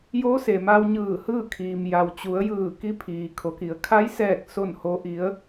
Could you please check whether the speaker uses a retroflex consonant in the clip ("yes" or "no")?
no